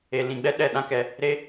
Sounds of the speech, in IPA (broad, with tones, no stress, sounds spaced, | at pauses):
e˨ l ĩ˨ ɡ͡b ɛ˧ ɗ ɛ˦˨ ɗ ã˦ k ɛ˧ | ɾ e˦